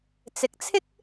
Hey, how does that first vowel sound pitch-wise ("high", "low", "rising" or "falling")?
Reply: rising